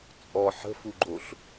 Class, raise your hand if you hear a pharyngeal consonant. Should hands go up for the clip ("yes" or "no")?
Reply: yes